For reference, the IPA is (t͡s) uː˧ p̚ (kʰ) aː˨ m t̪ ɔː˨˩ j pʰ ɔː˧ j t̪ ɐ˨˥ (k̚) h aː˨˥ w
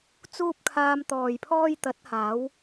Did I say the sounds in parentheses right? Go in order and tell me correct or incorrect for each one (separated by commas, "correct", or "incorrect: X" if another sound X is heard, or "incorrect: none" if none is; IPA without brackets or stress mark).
correct, correct, incorrect: t̚